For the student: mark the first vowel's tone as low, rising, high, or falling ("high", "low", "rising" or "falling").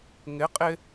rising